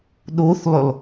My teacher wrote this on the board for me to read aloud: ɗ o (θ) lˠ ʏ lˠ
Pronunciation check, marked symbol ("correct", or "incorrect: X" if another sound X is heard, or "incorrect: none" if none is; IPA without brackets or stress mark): correct